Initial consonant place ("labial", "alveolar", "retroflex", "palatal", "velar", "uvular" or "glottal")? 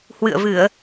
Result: glottal